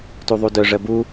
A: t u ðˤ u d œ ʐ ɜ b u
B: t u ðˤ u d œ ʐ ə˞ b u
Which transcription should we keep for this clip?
A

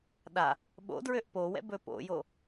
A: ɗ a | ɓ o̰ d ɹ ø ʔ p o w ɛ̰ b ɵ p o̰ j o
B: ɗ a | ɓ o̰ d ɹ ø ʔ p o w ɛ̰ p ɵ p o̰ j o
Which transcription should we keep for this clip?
A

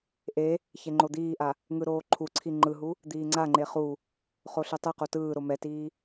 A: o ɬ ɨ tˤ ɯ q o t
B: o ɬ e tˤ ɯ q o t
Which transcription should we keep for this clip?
B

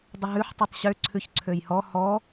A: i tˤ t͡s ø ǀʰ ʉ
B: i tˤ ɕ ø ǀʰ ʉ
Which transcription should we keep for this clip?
B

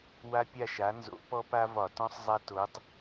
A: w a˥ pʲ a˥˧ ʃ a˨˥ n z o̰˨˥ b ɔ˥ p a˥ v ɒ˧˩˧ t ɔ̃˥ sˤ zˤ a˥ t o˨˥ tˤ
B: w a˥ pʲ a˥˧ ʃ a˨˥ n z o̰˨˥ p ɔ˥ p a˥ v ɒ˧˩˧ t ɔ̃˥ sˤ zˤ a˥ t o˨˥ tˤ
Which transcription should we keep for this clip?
B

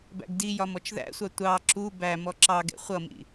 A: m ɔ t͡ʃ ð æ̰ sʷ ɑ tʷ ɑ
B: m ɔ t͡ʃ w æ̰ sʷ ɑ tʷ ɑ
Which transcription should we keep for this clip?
A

